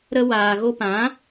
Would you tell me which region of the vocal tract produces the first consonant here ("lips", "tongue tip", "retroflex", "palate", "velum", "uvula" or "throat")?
tongue tip